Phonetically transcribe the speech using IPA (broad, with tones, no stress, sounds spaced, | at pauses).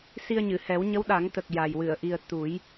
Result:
s i˧ ə̯ ɲ ɨ˨˩˨ h ɛ˨˩˦ w ɲ ə˧˥ w ɗ a˨˩˦ ŋ t̪ ə˨˩ k̚ j a˨˩ j w ɨ˨˩˨ ə̯ ʔ i˨˩ ə̯ t̪ u˨˩˦ j